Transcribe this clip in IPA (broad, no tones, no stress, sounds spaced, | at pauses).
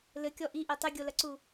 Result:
l ɘ kʲ ɔ ʔ i ʔ e tˤ ɘ ɡʲ o l ɐ ǀ u